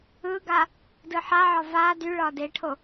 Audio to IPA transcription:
ɯ ɡ a | d ɯ ħ a ʕ ɒ v a d y ɭ ɒ d e ʈʰ o

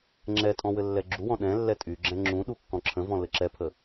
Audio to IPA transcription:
ŋ͡ǁ ɛ tʼ ɔ̃ w ɘ lː ɛ ɡ͡ǁ u w ɔ̃ ɗ ɛ̃ lː ɛ tʼ y ɡ͡ǁ ɛ̃ ŋ͡ǁ ũ ɗ u kː ɔ̃ ǁʰ ə̃ v ɔ̃ l ɘ ǁ ɛ pʰ ə

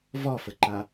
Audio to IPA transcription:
v ɒ f ə ǃ a

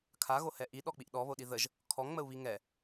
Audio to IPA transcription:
kʰ a ɣ o h ɛ ʔ i ɗ ɔ k͡p i ʔ ɗ ɔ β o ɗ i ð ə ʒ | kʰ ɔ ŋ ŋ͡m ə u̯ β i ŋ ɛ

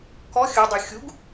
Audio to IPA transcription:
k ɔ xʲ ɵ dˤ y xʲ u ɡ

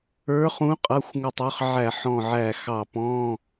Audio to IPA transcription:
ə˞˨˦ χ ũ˨˦ qʼ ʌ˩˧˩ xʷ ŋ ʊ˧˩ tˤ ə˞˨˦ χ ʕ æ˧˩˧ ħ ɔ̃˧˩ ʕ æ˧˩ x ɑ˧˩ p ɔ̃˧˥˧

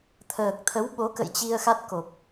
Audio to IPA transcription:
t̪ʰ əː˨˩ k̚ t̪ʰ ə˨˦ w ɓ o˨˦ k ə̰˧˨ j t͡ɕ i˧ ə̯ x a˦˥ t̚ k o˨˩ p̚

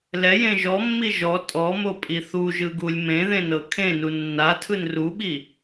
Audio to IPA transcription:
l ɛ j ẽ ʒ ɔ mː i ʒ ɔ tʼ ɔ m o pʼ i θ u ʒ ɯ ɡ u lʲ m ẽ ð ẽ n ɤ kʰ ẽ n u nː a tʰ ɯ n r u ɓ i

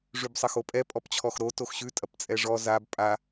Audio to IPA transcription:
ʐ ʉ b sˤ ɐ x o pʼ ɛ pʼ ɔ p t͡ɕʰ ɔ x ɾ o t o x ɕ ʉ tʼ ɐ p t͡sʼ ɛ ʐ ɔ z a b pʼ a

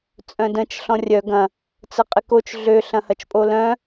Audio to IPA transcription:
t͡sʼ œ̃ d ə̃ t͡ʃ ɬ ɔ̃ rʲ œ ɡ ɐ̃ | t͡s ə qʼ ɪ k o t͡ʃ ɮ ø ɬ ɐ̃ h ɐ t͡ʃ pʼ o l œ̃

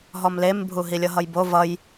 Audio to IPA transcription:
ɦ ɔ m l e m bʱ u ɦ i lʲ ʌ ɦ ʌ j b o v ʌ j

